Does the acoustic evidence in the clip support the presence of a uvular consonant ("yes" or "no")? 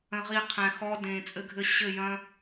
yes